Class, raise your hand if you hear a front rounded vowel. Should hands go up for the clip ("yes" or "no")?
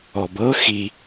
no